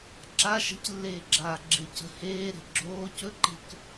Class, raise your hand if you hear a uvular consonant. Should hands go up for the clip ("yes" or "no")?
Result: no